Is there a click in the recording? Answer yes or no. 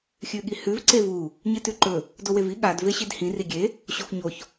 yes